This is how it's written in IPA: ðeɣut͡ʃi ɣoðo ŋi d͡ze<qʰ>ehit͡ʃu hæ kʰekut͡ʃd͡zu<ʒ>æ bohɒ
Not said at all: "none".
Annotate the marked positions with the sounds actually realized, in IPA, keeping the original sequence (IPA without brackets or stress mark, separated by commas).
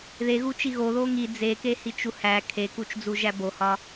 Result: k, ʒ